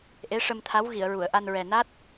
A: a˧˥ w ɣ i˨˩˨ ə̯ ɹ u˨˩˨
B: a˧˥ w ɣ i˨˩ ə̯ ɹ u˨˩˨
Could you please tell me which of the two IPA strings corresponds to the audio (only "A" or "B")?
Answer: A